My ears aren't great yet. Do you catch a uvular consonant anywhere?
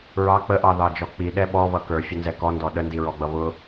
no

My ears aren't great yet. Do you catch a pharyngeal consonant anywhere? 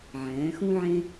yes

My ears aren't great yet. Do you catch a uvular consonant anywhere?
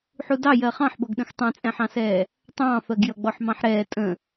yes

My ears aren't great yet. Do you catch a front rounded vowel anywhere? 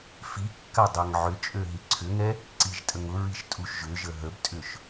yes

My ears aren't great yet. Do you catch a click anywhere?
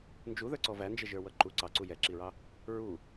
yes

